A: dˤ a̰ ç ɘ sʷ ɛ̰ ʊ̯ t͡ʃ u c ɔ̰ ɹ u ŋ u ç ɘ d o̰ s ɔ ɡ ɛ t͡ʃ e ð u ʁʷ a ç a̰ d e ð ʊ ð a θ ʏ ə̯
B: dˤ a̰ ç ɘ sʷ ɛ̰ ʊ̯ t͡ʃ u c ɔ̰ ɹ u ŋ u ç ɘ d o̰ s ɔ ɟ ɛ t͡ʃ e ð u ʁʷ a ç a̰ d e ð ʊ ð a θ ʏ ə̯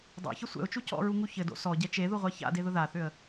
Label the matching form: B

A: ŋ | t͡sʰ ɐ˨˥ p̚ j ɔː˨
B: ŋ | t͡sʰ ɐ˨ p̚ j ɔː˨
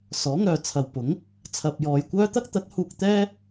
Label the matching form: B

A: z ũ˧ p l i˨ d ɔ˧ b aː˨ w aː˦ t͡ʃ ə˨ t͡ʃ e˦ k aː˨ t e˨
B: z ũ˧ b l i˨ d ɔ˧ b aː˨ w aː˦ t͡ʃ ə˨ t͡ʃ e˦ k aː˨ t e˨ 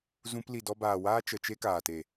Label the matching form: A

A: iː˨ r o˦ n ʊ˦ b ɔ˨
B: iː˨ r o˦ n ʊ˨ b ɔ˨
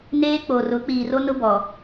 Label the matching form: A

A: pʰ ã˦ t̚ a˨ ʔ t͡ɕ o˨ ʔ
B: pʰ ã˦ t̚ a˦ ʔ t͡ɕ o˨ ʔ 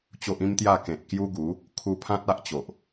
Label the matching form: B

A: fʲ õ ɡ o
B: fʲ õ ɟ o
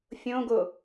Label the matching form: A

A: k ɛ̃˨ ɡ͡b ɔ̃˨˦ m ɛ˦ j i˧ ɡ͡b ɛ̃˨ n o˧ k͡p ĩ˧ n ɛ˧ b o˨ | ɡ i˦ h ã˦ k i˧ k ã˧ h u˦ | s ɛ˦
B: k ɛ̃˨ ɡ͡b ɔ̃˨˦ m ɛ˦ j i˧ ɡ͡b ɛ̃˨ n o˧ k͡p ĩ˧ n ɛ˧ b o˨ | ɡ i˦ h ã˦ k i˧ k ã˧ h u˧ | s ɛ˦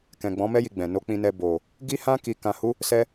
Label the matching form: A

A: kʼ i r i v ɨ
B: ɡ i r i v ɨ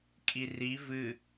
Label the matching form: A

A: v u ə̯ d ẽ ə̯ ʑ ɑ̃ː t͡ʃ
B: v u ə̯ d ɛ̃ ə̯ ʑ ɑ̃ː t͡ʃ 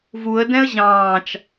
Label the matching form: B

